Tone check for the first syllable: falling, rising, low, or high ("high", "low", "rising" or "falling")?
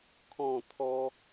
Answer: falling